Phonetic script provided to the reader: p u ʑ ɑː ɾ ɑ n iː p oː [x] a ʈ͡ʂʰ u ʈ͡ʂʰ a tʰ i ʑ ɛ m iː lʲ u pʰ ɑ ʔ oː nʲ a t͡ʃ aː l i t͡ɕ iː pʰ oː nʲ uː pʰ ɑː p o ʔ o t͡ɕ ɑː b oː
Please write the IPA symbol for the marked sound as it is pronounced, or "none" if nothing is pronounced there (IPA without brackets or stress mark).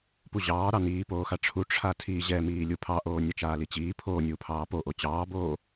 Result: x